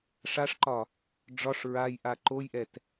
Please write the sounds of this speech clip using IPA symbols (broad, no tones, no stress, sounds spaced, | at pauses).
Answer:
ʂ a ʂ ǃ ɒ | ɖ͡ʐ ɒ ʂ ɹ a j ʔ a ǃ o j ʔ ɛ t